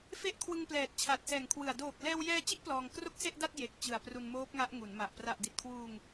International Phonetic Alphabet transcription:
f e˦˥ ʔ kʰ w ɯ˧ ŋ p l ɛː˨˩ t̚ t͡ɕʰ a˨˩ t̚ s ɛː˨˩ ŋ kʰ w ɯ˨˩ a̯ d oː˨˩ k̚ l ɛː˧ w j ɛː˧ t͡ɕ i˦˥ ʔ p l ɔː˧ ŋ k r o˥˩ k̚ s e˥˩ ʔ d a˥˩ t̚ j e˨˩ k̚ t͡ɕ ɯ˨˩ a̯ p r u˧ n m oː˦˥ p̚ ŋ a˦˥ ʔ ŋ u˩˦ n m a˨˩ ʔ p r a˨˩ ʔ d i˨˩ t̚ kʰ w uː˧ ŋ

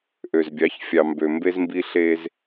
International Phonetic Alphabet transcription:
ʔ ø˨ z bʲ ɑ˨˦ ç fʲ ɑ˨ m b ø˨ m b e˦ z m b i˦ ɬ e˦ z

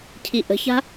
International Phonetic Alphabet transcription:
cʰ i ʔ ə̤ ç a̤

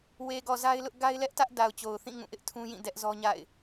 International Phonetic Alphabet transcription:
w e˨ ɡ ɔ˨ z a˦ ɪ̯ l ʊ˦ ʔ ɡ a˦ ɪ̯ l ɛ˦ ʔ t ä˦ ʔ d a˨ ʊ̯ t͡ɕ o˨ ʊ̯ θ ĩ˦˨ ŋ ũ˦˨ ʔ ɪ˦ ʔ tʰ ũ˦ j ĩ˦˨ d ɛ˦ ʔ z ɔ˦ ɲ a̰˦˨ ɪ̯

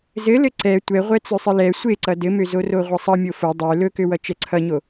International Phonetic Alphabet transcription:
z ɘ l ɘ ǀ ɛ tʷ ɛ ʁʷ ɛ t͡s ø sˤ ɘ l ɛ sʷ e ǀ ʌ d ɘ m ø z o r o ʁʷ ʌ sˤ ʌ mʲ o f o dˤ ø l ɵ k ø w ʌ t͡ʃ ɛ ǀʰ ʌ ɲ o

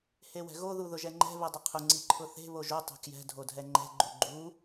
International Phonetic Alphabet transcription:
h e w ɛ̤ ɣ o ð u ð ʊ ʒ ɛ ŋ͡ǃ ɛ̤ β e dˤ ʊ qʰ ʊ ŋ͡ǀ i ǃʰ ʊ θ e̤ β o ʒ o tˤ ɛ̤ k j ɛ̤ dʱ o dʱ ɛ ŋ͡ǃ ɛ̤ ɡ͡ǃ u ɡ͡ǃ u

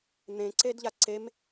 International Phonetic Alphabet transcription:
n̪ ẽ ǀ e d ʎ a ǀ e m

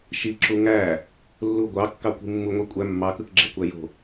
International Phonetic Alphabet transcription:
ʃ i ǁ u ŋ æ | lː u ɡʷ ɑ kː ɑ kʷ i̤ mː u ŋʷ i kʷʼ æ mː ɑ k ɯ k ɡ͡ǁ e kʷ æ j o̤

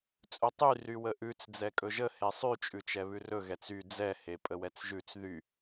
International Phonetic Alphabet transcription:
t͡sʼ ɵ tˤ y r y w ə ʔ ʉ t͡s d͡z ɛ kʼ ɵ ʒ ə h e sˤ y t͡ʃʼ ʉ t͡ʃ ɛ β ʉ r ɵ ɣ ɛ t͡s y d͡z ɛ h e pʼ ə w ɛ t͡s ʒ ʉ t͡s ð y

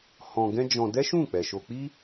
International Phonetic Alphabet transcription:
h ɔ̃˧ ɡ ɛ̃˦ d͡ʒ ɔ̃˧ d ɛ˦ ʃ ũ˦˨ k͡p ɛ˨ ʃ o˧ k͡p i˦

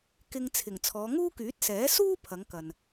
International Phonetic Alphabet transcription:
k ɪ˧ ŋ t͡sʰ ɪ˨˩ ŋ t͡sʰ ɔː˨˧ ŋ uː˥ k yː˨˥ t̚ s ɛː˨˥ s uː˥ pʰ ɐ˨˧ ŋ k ɐ˨ n

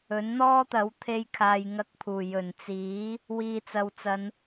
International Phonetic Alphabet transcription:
ɵ˨˥ n n̪ ɔː˥ t̪ ɐ˨˥ w t̪ʰ e˧ j kʰ aː˨ j ŋ ɐ˧ k̚ pʰ uː˨˩ j ɵ˨˩ n t͡s iː˨˥ | w iː˨ t͡s ɐ˨ w t͡s ɐ˨˧ n

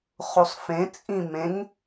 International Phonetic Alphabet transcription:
χ u sˤ f ẽ t͡sʼ ĩ m ẽ ŋ

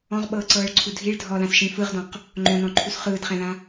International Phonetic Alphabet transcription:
ɔ̃ ʁ ɓ ɤː ǀ ɤː ɭ ǀʰ u dʱ i ɭ dʱ ɔ l ã s ʃ ĩː f ɯ ʁ d ɔ̃ q | ŋ͡ǃ õ n ɔ̃ ǃʰ u s χ ɯː d χ ɛ̃ l ã

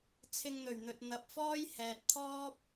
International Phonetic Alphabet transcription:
t͡sʰ ɪ˧ ŋ n̪ ɵ˨˩ ɥ n̪ ɵ˨ t̚ n̪ ɐ˨ p̚ f ɔː˥ j h ɛː˨ t̚ t̪ʰ ɔː˥ p̚

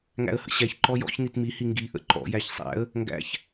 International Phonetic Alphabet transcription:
ŋ æ̰ ə̯ h ə̰ ɕ æ ç ǃ ɔ j ɔ̰ ç n i t m i h i ŋ ɡ i ʔ ə̰ ǃ ɔ̰ j æ ç sˤ æ̰ ə̯ | ŋ ɡ æ̰ ç

